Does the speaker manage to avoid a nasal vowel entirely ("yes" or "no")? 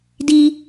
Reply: yes